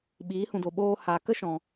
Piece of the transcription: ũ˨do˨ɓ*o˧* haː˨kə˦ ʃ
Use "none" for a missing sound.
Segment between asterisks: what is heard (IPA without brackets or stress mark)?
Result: oː˧